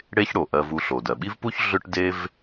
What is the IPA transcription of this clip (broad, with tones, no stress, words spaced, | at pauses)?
ɽe˥çɽo˩ ʔɜ˧vu˧ɬo˩dɜ˩ ɓi˥vpu˥ç ɮʏ˥ʈde˥v